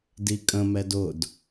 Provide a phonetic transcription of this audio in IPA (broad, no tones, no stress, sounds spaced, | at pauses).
d i kʼ ə̃ m ɛ d ʊ d